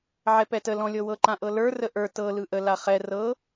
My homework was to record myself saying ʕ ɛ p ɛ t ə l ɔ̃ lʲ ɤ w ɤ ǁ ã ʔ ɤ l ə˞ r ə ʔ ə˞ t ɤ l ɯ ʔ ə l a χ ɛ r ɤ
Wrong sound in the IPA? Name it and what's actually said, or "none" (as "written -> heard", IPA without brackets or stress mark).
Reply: ǁ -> ǃ